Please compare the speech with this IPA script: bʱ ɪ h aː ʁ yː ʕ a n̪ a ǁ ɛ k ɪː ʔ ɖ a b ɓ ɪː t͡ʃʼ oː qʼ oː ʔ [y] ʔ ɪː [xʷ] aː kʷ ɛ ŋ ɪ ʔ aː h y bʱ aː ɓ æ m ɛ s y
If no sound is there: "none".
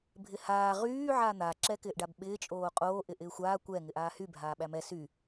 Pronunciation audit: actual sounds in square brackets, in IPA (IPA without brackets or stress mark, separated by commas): ɪ, xʷ